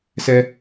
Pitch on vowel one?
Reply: low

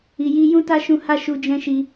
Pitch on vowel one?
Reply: low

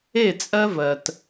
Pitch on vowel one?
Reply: falling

